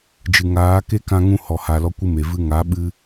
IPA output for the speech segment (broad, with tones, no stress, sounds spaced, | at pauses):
d͡ʒ ɨ˨ ŋ aː˨˦ k e˦ k ã˧ ŋ ũ˧ h ɔ˨ h a˨ l ɔ˦ kʷ ɨ˦ m e˨ v ɨ˧ ŋ a˨˦ ɓ ɨ˧